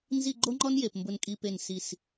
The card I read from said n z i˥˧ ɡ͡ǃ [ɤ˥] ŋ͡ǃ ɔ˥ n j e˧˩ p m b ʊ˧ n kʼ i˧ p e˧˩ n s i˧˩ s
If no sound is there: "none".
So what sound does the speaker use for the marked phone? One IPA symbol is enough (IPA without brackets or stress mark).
o˥